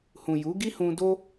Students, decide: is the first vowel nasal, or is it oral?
nasal